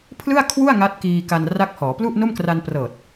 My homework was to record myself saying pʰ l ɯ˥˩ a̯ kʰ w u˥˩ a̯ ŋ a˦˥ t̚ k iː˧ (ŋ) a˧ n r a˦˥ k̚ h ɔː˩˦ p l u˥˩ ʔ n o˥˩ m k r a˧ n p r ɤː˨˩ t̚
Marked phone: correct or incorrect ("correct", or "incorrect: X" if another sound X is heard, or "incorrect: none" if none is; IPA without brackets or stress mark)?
incorrect: k